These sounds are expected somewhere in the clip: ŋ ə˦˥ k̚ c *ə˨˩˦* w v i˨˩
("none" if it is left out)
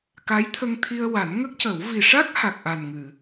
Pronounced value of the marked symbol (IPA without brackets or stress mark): ə˨˩˦